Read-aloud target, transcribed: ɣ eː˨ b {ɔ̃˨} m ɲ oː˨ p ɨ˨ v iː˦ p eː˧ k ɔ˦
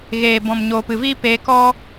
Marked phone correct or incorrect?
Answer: correct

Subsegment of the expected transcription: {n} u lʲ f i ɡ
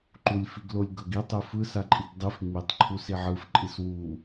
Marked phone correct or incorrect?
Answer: incorrect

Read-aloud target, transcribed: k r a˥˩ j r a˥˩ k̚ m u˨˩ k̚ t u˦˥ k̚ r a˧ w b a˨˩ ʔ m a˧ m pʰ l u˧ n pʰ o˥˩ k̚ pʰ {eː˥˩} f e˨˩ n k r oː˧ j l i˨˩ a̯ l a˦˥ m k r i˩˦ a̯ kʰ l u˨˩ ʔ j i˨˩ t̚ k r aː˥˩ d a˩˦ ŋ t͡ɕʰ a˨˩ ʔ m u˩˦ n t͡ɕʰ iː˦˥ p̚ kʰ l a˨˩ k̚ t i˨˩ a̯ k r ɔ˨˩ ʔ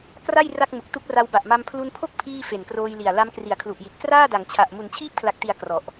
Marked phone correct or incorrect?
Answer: incorrect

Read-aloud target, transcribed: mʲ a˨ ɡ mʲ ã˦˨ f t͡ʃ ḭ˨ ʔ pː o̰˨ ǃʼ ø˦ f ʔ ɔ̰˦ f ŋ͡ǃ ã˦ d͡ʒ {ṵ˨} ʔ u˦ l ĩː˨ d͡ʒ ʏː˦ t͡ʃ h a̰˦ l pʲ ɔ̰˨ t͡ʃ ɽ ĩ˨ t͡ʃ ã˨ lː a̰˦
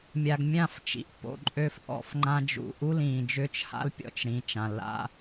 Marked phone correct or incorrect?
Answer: correct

